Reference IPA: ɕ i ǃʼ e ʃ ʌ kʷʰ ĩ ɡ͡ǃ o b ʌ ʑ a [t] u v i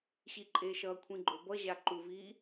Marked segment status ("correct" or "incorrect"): incorrect